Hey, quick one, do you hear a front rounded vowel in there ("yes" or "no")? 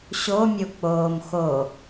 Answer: no